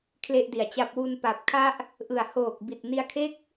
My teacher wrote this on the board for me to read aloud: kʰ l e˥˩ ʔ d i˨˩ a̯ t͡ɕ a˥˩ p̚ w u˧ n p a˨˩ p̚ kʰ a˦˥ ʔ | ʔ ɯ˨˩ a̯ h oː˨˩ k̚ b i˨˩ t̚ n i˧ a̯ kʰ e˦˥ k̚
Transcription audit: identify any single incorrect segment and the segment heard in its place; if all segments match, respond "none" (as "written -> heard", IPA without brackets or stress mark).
none